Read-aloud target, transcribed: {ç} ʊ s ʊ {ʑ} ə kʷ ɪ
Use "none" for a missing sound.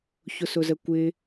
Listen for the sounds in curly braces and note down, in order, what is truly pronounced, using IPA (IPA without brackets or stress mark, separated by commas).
ç, z